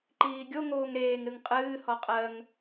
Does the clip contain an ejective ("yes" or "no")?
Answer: yes